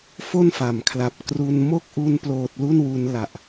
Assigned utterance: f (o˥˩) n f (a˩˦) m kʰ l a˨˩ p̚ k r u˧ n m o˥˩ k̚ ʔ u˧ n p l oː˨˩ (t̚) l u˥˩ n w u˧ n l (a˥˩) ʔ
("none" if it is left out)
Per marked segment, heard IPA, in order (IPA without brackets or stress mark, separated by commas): o˥˩, a˩˦, t̚, a˨˩